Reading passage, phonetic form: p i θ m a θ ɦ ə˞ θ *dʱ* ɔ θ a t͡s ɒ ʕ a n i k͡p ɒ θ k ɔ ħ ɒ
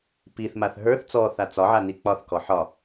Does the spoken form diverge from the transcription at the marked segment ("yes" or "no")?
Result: yes